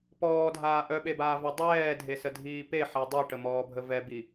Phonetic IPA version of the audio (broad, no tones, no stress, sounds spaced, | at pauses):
p ɔː dʱ aː ʔ œ ɓ e b aː v ɛ dˤ ɛː dʱ e s ə dʱ iː p e ħ ɛ dˤ i ʈ ə m ɔː bʱ ə v ɛ b i